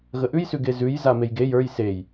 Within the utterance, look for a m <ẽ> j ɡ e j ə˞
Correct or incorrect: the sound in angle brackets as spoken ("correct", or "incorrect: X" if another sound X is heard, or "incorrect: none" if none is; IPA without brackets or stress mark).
incorrect: e